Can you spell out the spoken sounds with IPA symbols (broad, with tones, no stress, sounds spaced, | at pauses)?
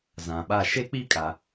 z ã˨ ɓ a˦˨ ʃ e˦ k͡p i˦ kʼ a˨